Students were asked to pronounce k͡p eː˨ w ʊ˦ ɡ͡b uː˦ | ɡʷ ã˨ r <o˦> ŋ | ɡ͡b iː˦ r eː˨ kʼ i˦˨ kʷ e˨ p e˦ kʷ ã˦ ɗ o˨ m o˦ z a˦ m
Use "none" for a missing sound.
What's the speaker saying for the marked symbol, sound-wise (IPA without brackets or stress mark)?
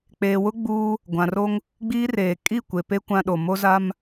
o˦